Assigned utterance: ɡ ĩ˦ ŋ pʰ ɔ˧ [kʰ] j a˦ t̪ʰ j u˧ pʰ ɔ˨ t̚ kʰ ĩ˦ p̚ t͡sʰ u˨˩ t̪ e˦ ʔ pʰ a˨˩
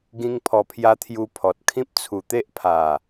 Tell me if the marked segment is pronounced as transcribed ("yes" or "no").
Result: no